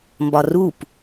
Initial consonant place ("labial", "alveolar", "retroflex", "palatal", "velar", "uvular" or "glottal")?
labial